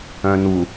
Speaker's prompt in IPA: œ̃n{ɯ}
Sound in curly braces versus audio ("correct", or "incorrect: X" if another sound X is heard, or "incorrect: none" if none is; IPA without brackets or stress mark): incorrect: u